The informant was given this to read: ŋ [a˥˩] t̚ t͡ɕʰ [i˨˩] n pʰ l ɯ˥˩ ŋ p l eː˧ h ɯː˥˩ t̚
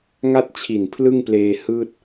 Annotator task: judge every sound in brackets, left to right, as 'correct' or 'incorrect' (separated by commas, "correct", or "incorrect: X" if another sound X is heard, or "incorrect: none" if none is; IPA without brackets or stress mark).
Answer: correct, correct